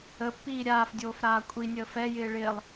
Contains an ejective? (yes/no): yes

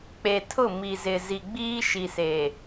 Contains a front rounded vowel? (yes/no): no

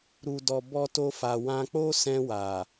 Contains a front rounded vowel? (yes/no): no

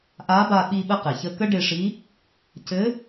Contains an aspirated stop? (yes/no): no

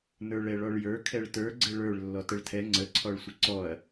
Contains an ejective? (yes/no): no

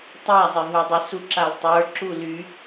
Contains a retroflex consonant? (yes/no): no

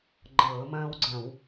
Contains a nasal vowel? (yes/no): yes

